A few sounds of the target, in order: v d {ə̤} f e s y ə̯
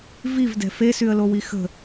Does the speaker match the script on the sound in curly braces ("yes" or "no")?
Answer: no